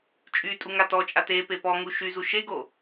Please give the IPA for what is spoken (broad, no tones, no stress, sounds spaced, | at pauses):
t͡ʃʼ y tʼ u ŋ a t ɔ t͡ʃʼ a t e p e p ɔ ŋ u ʃ y z u ʃ e ɡ o